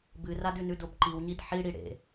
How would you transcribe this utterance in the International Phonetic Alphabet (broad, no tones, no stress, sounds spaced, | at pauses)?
b ɨ r a d ʉ n ʉ d o b ǃ i w ɲ i d ħ i ɽ i ɽ ḛ